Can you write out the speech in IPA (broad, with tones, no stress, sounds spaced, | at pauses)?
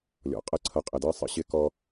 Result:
lʲ ɔ̰˨ qʼ ə˦ ǀʰ ʌ˨˦ qʼ ɪ˨ d ɜ˦ sˤ ə̰˦ ɕ ɪ˦ k ɔ˦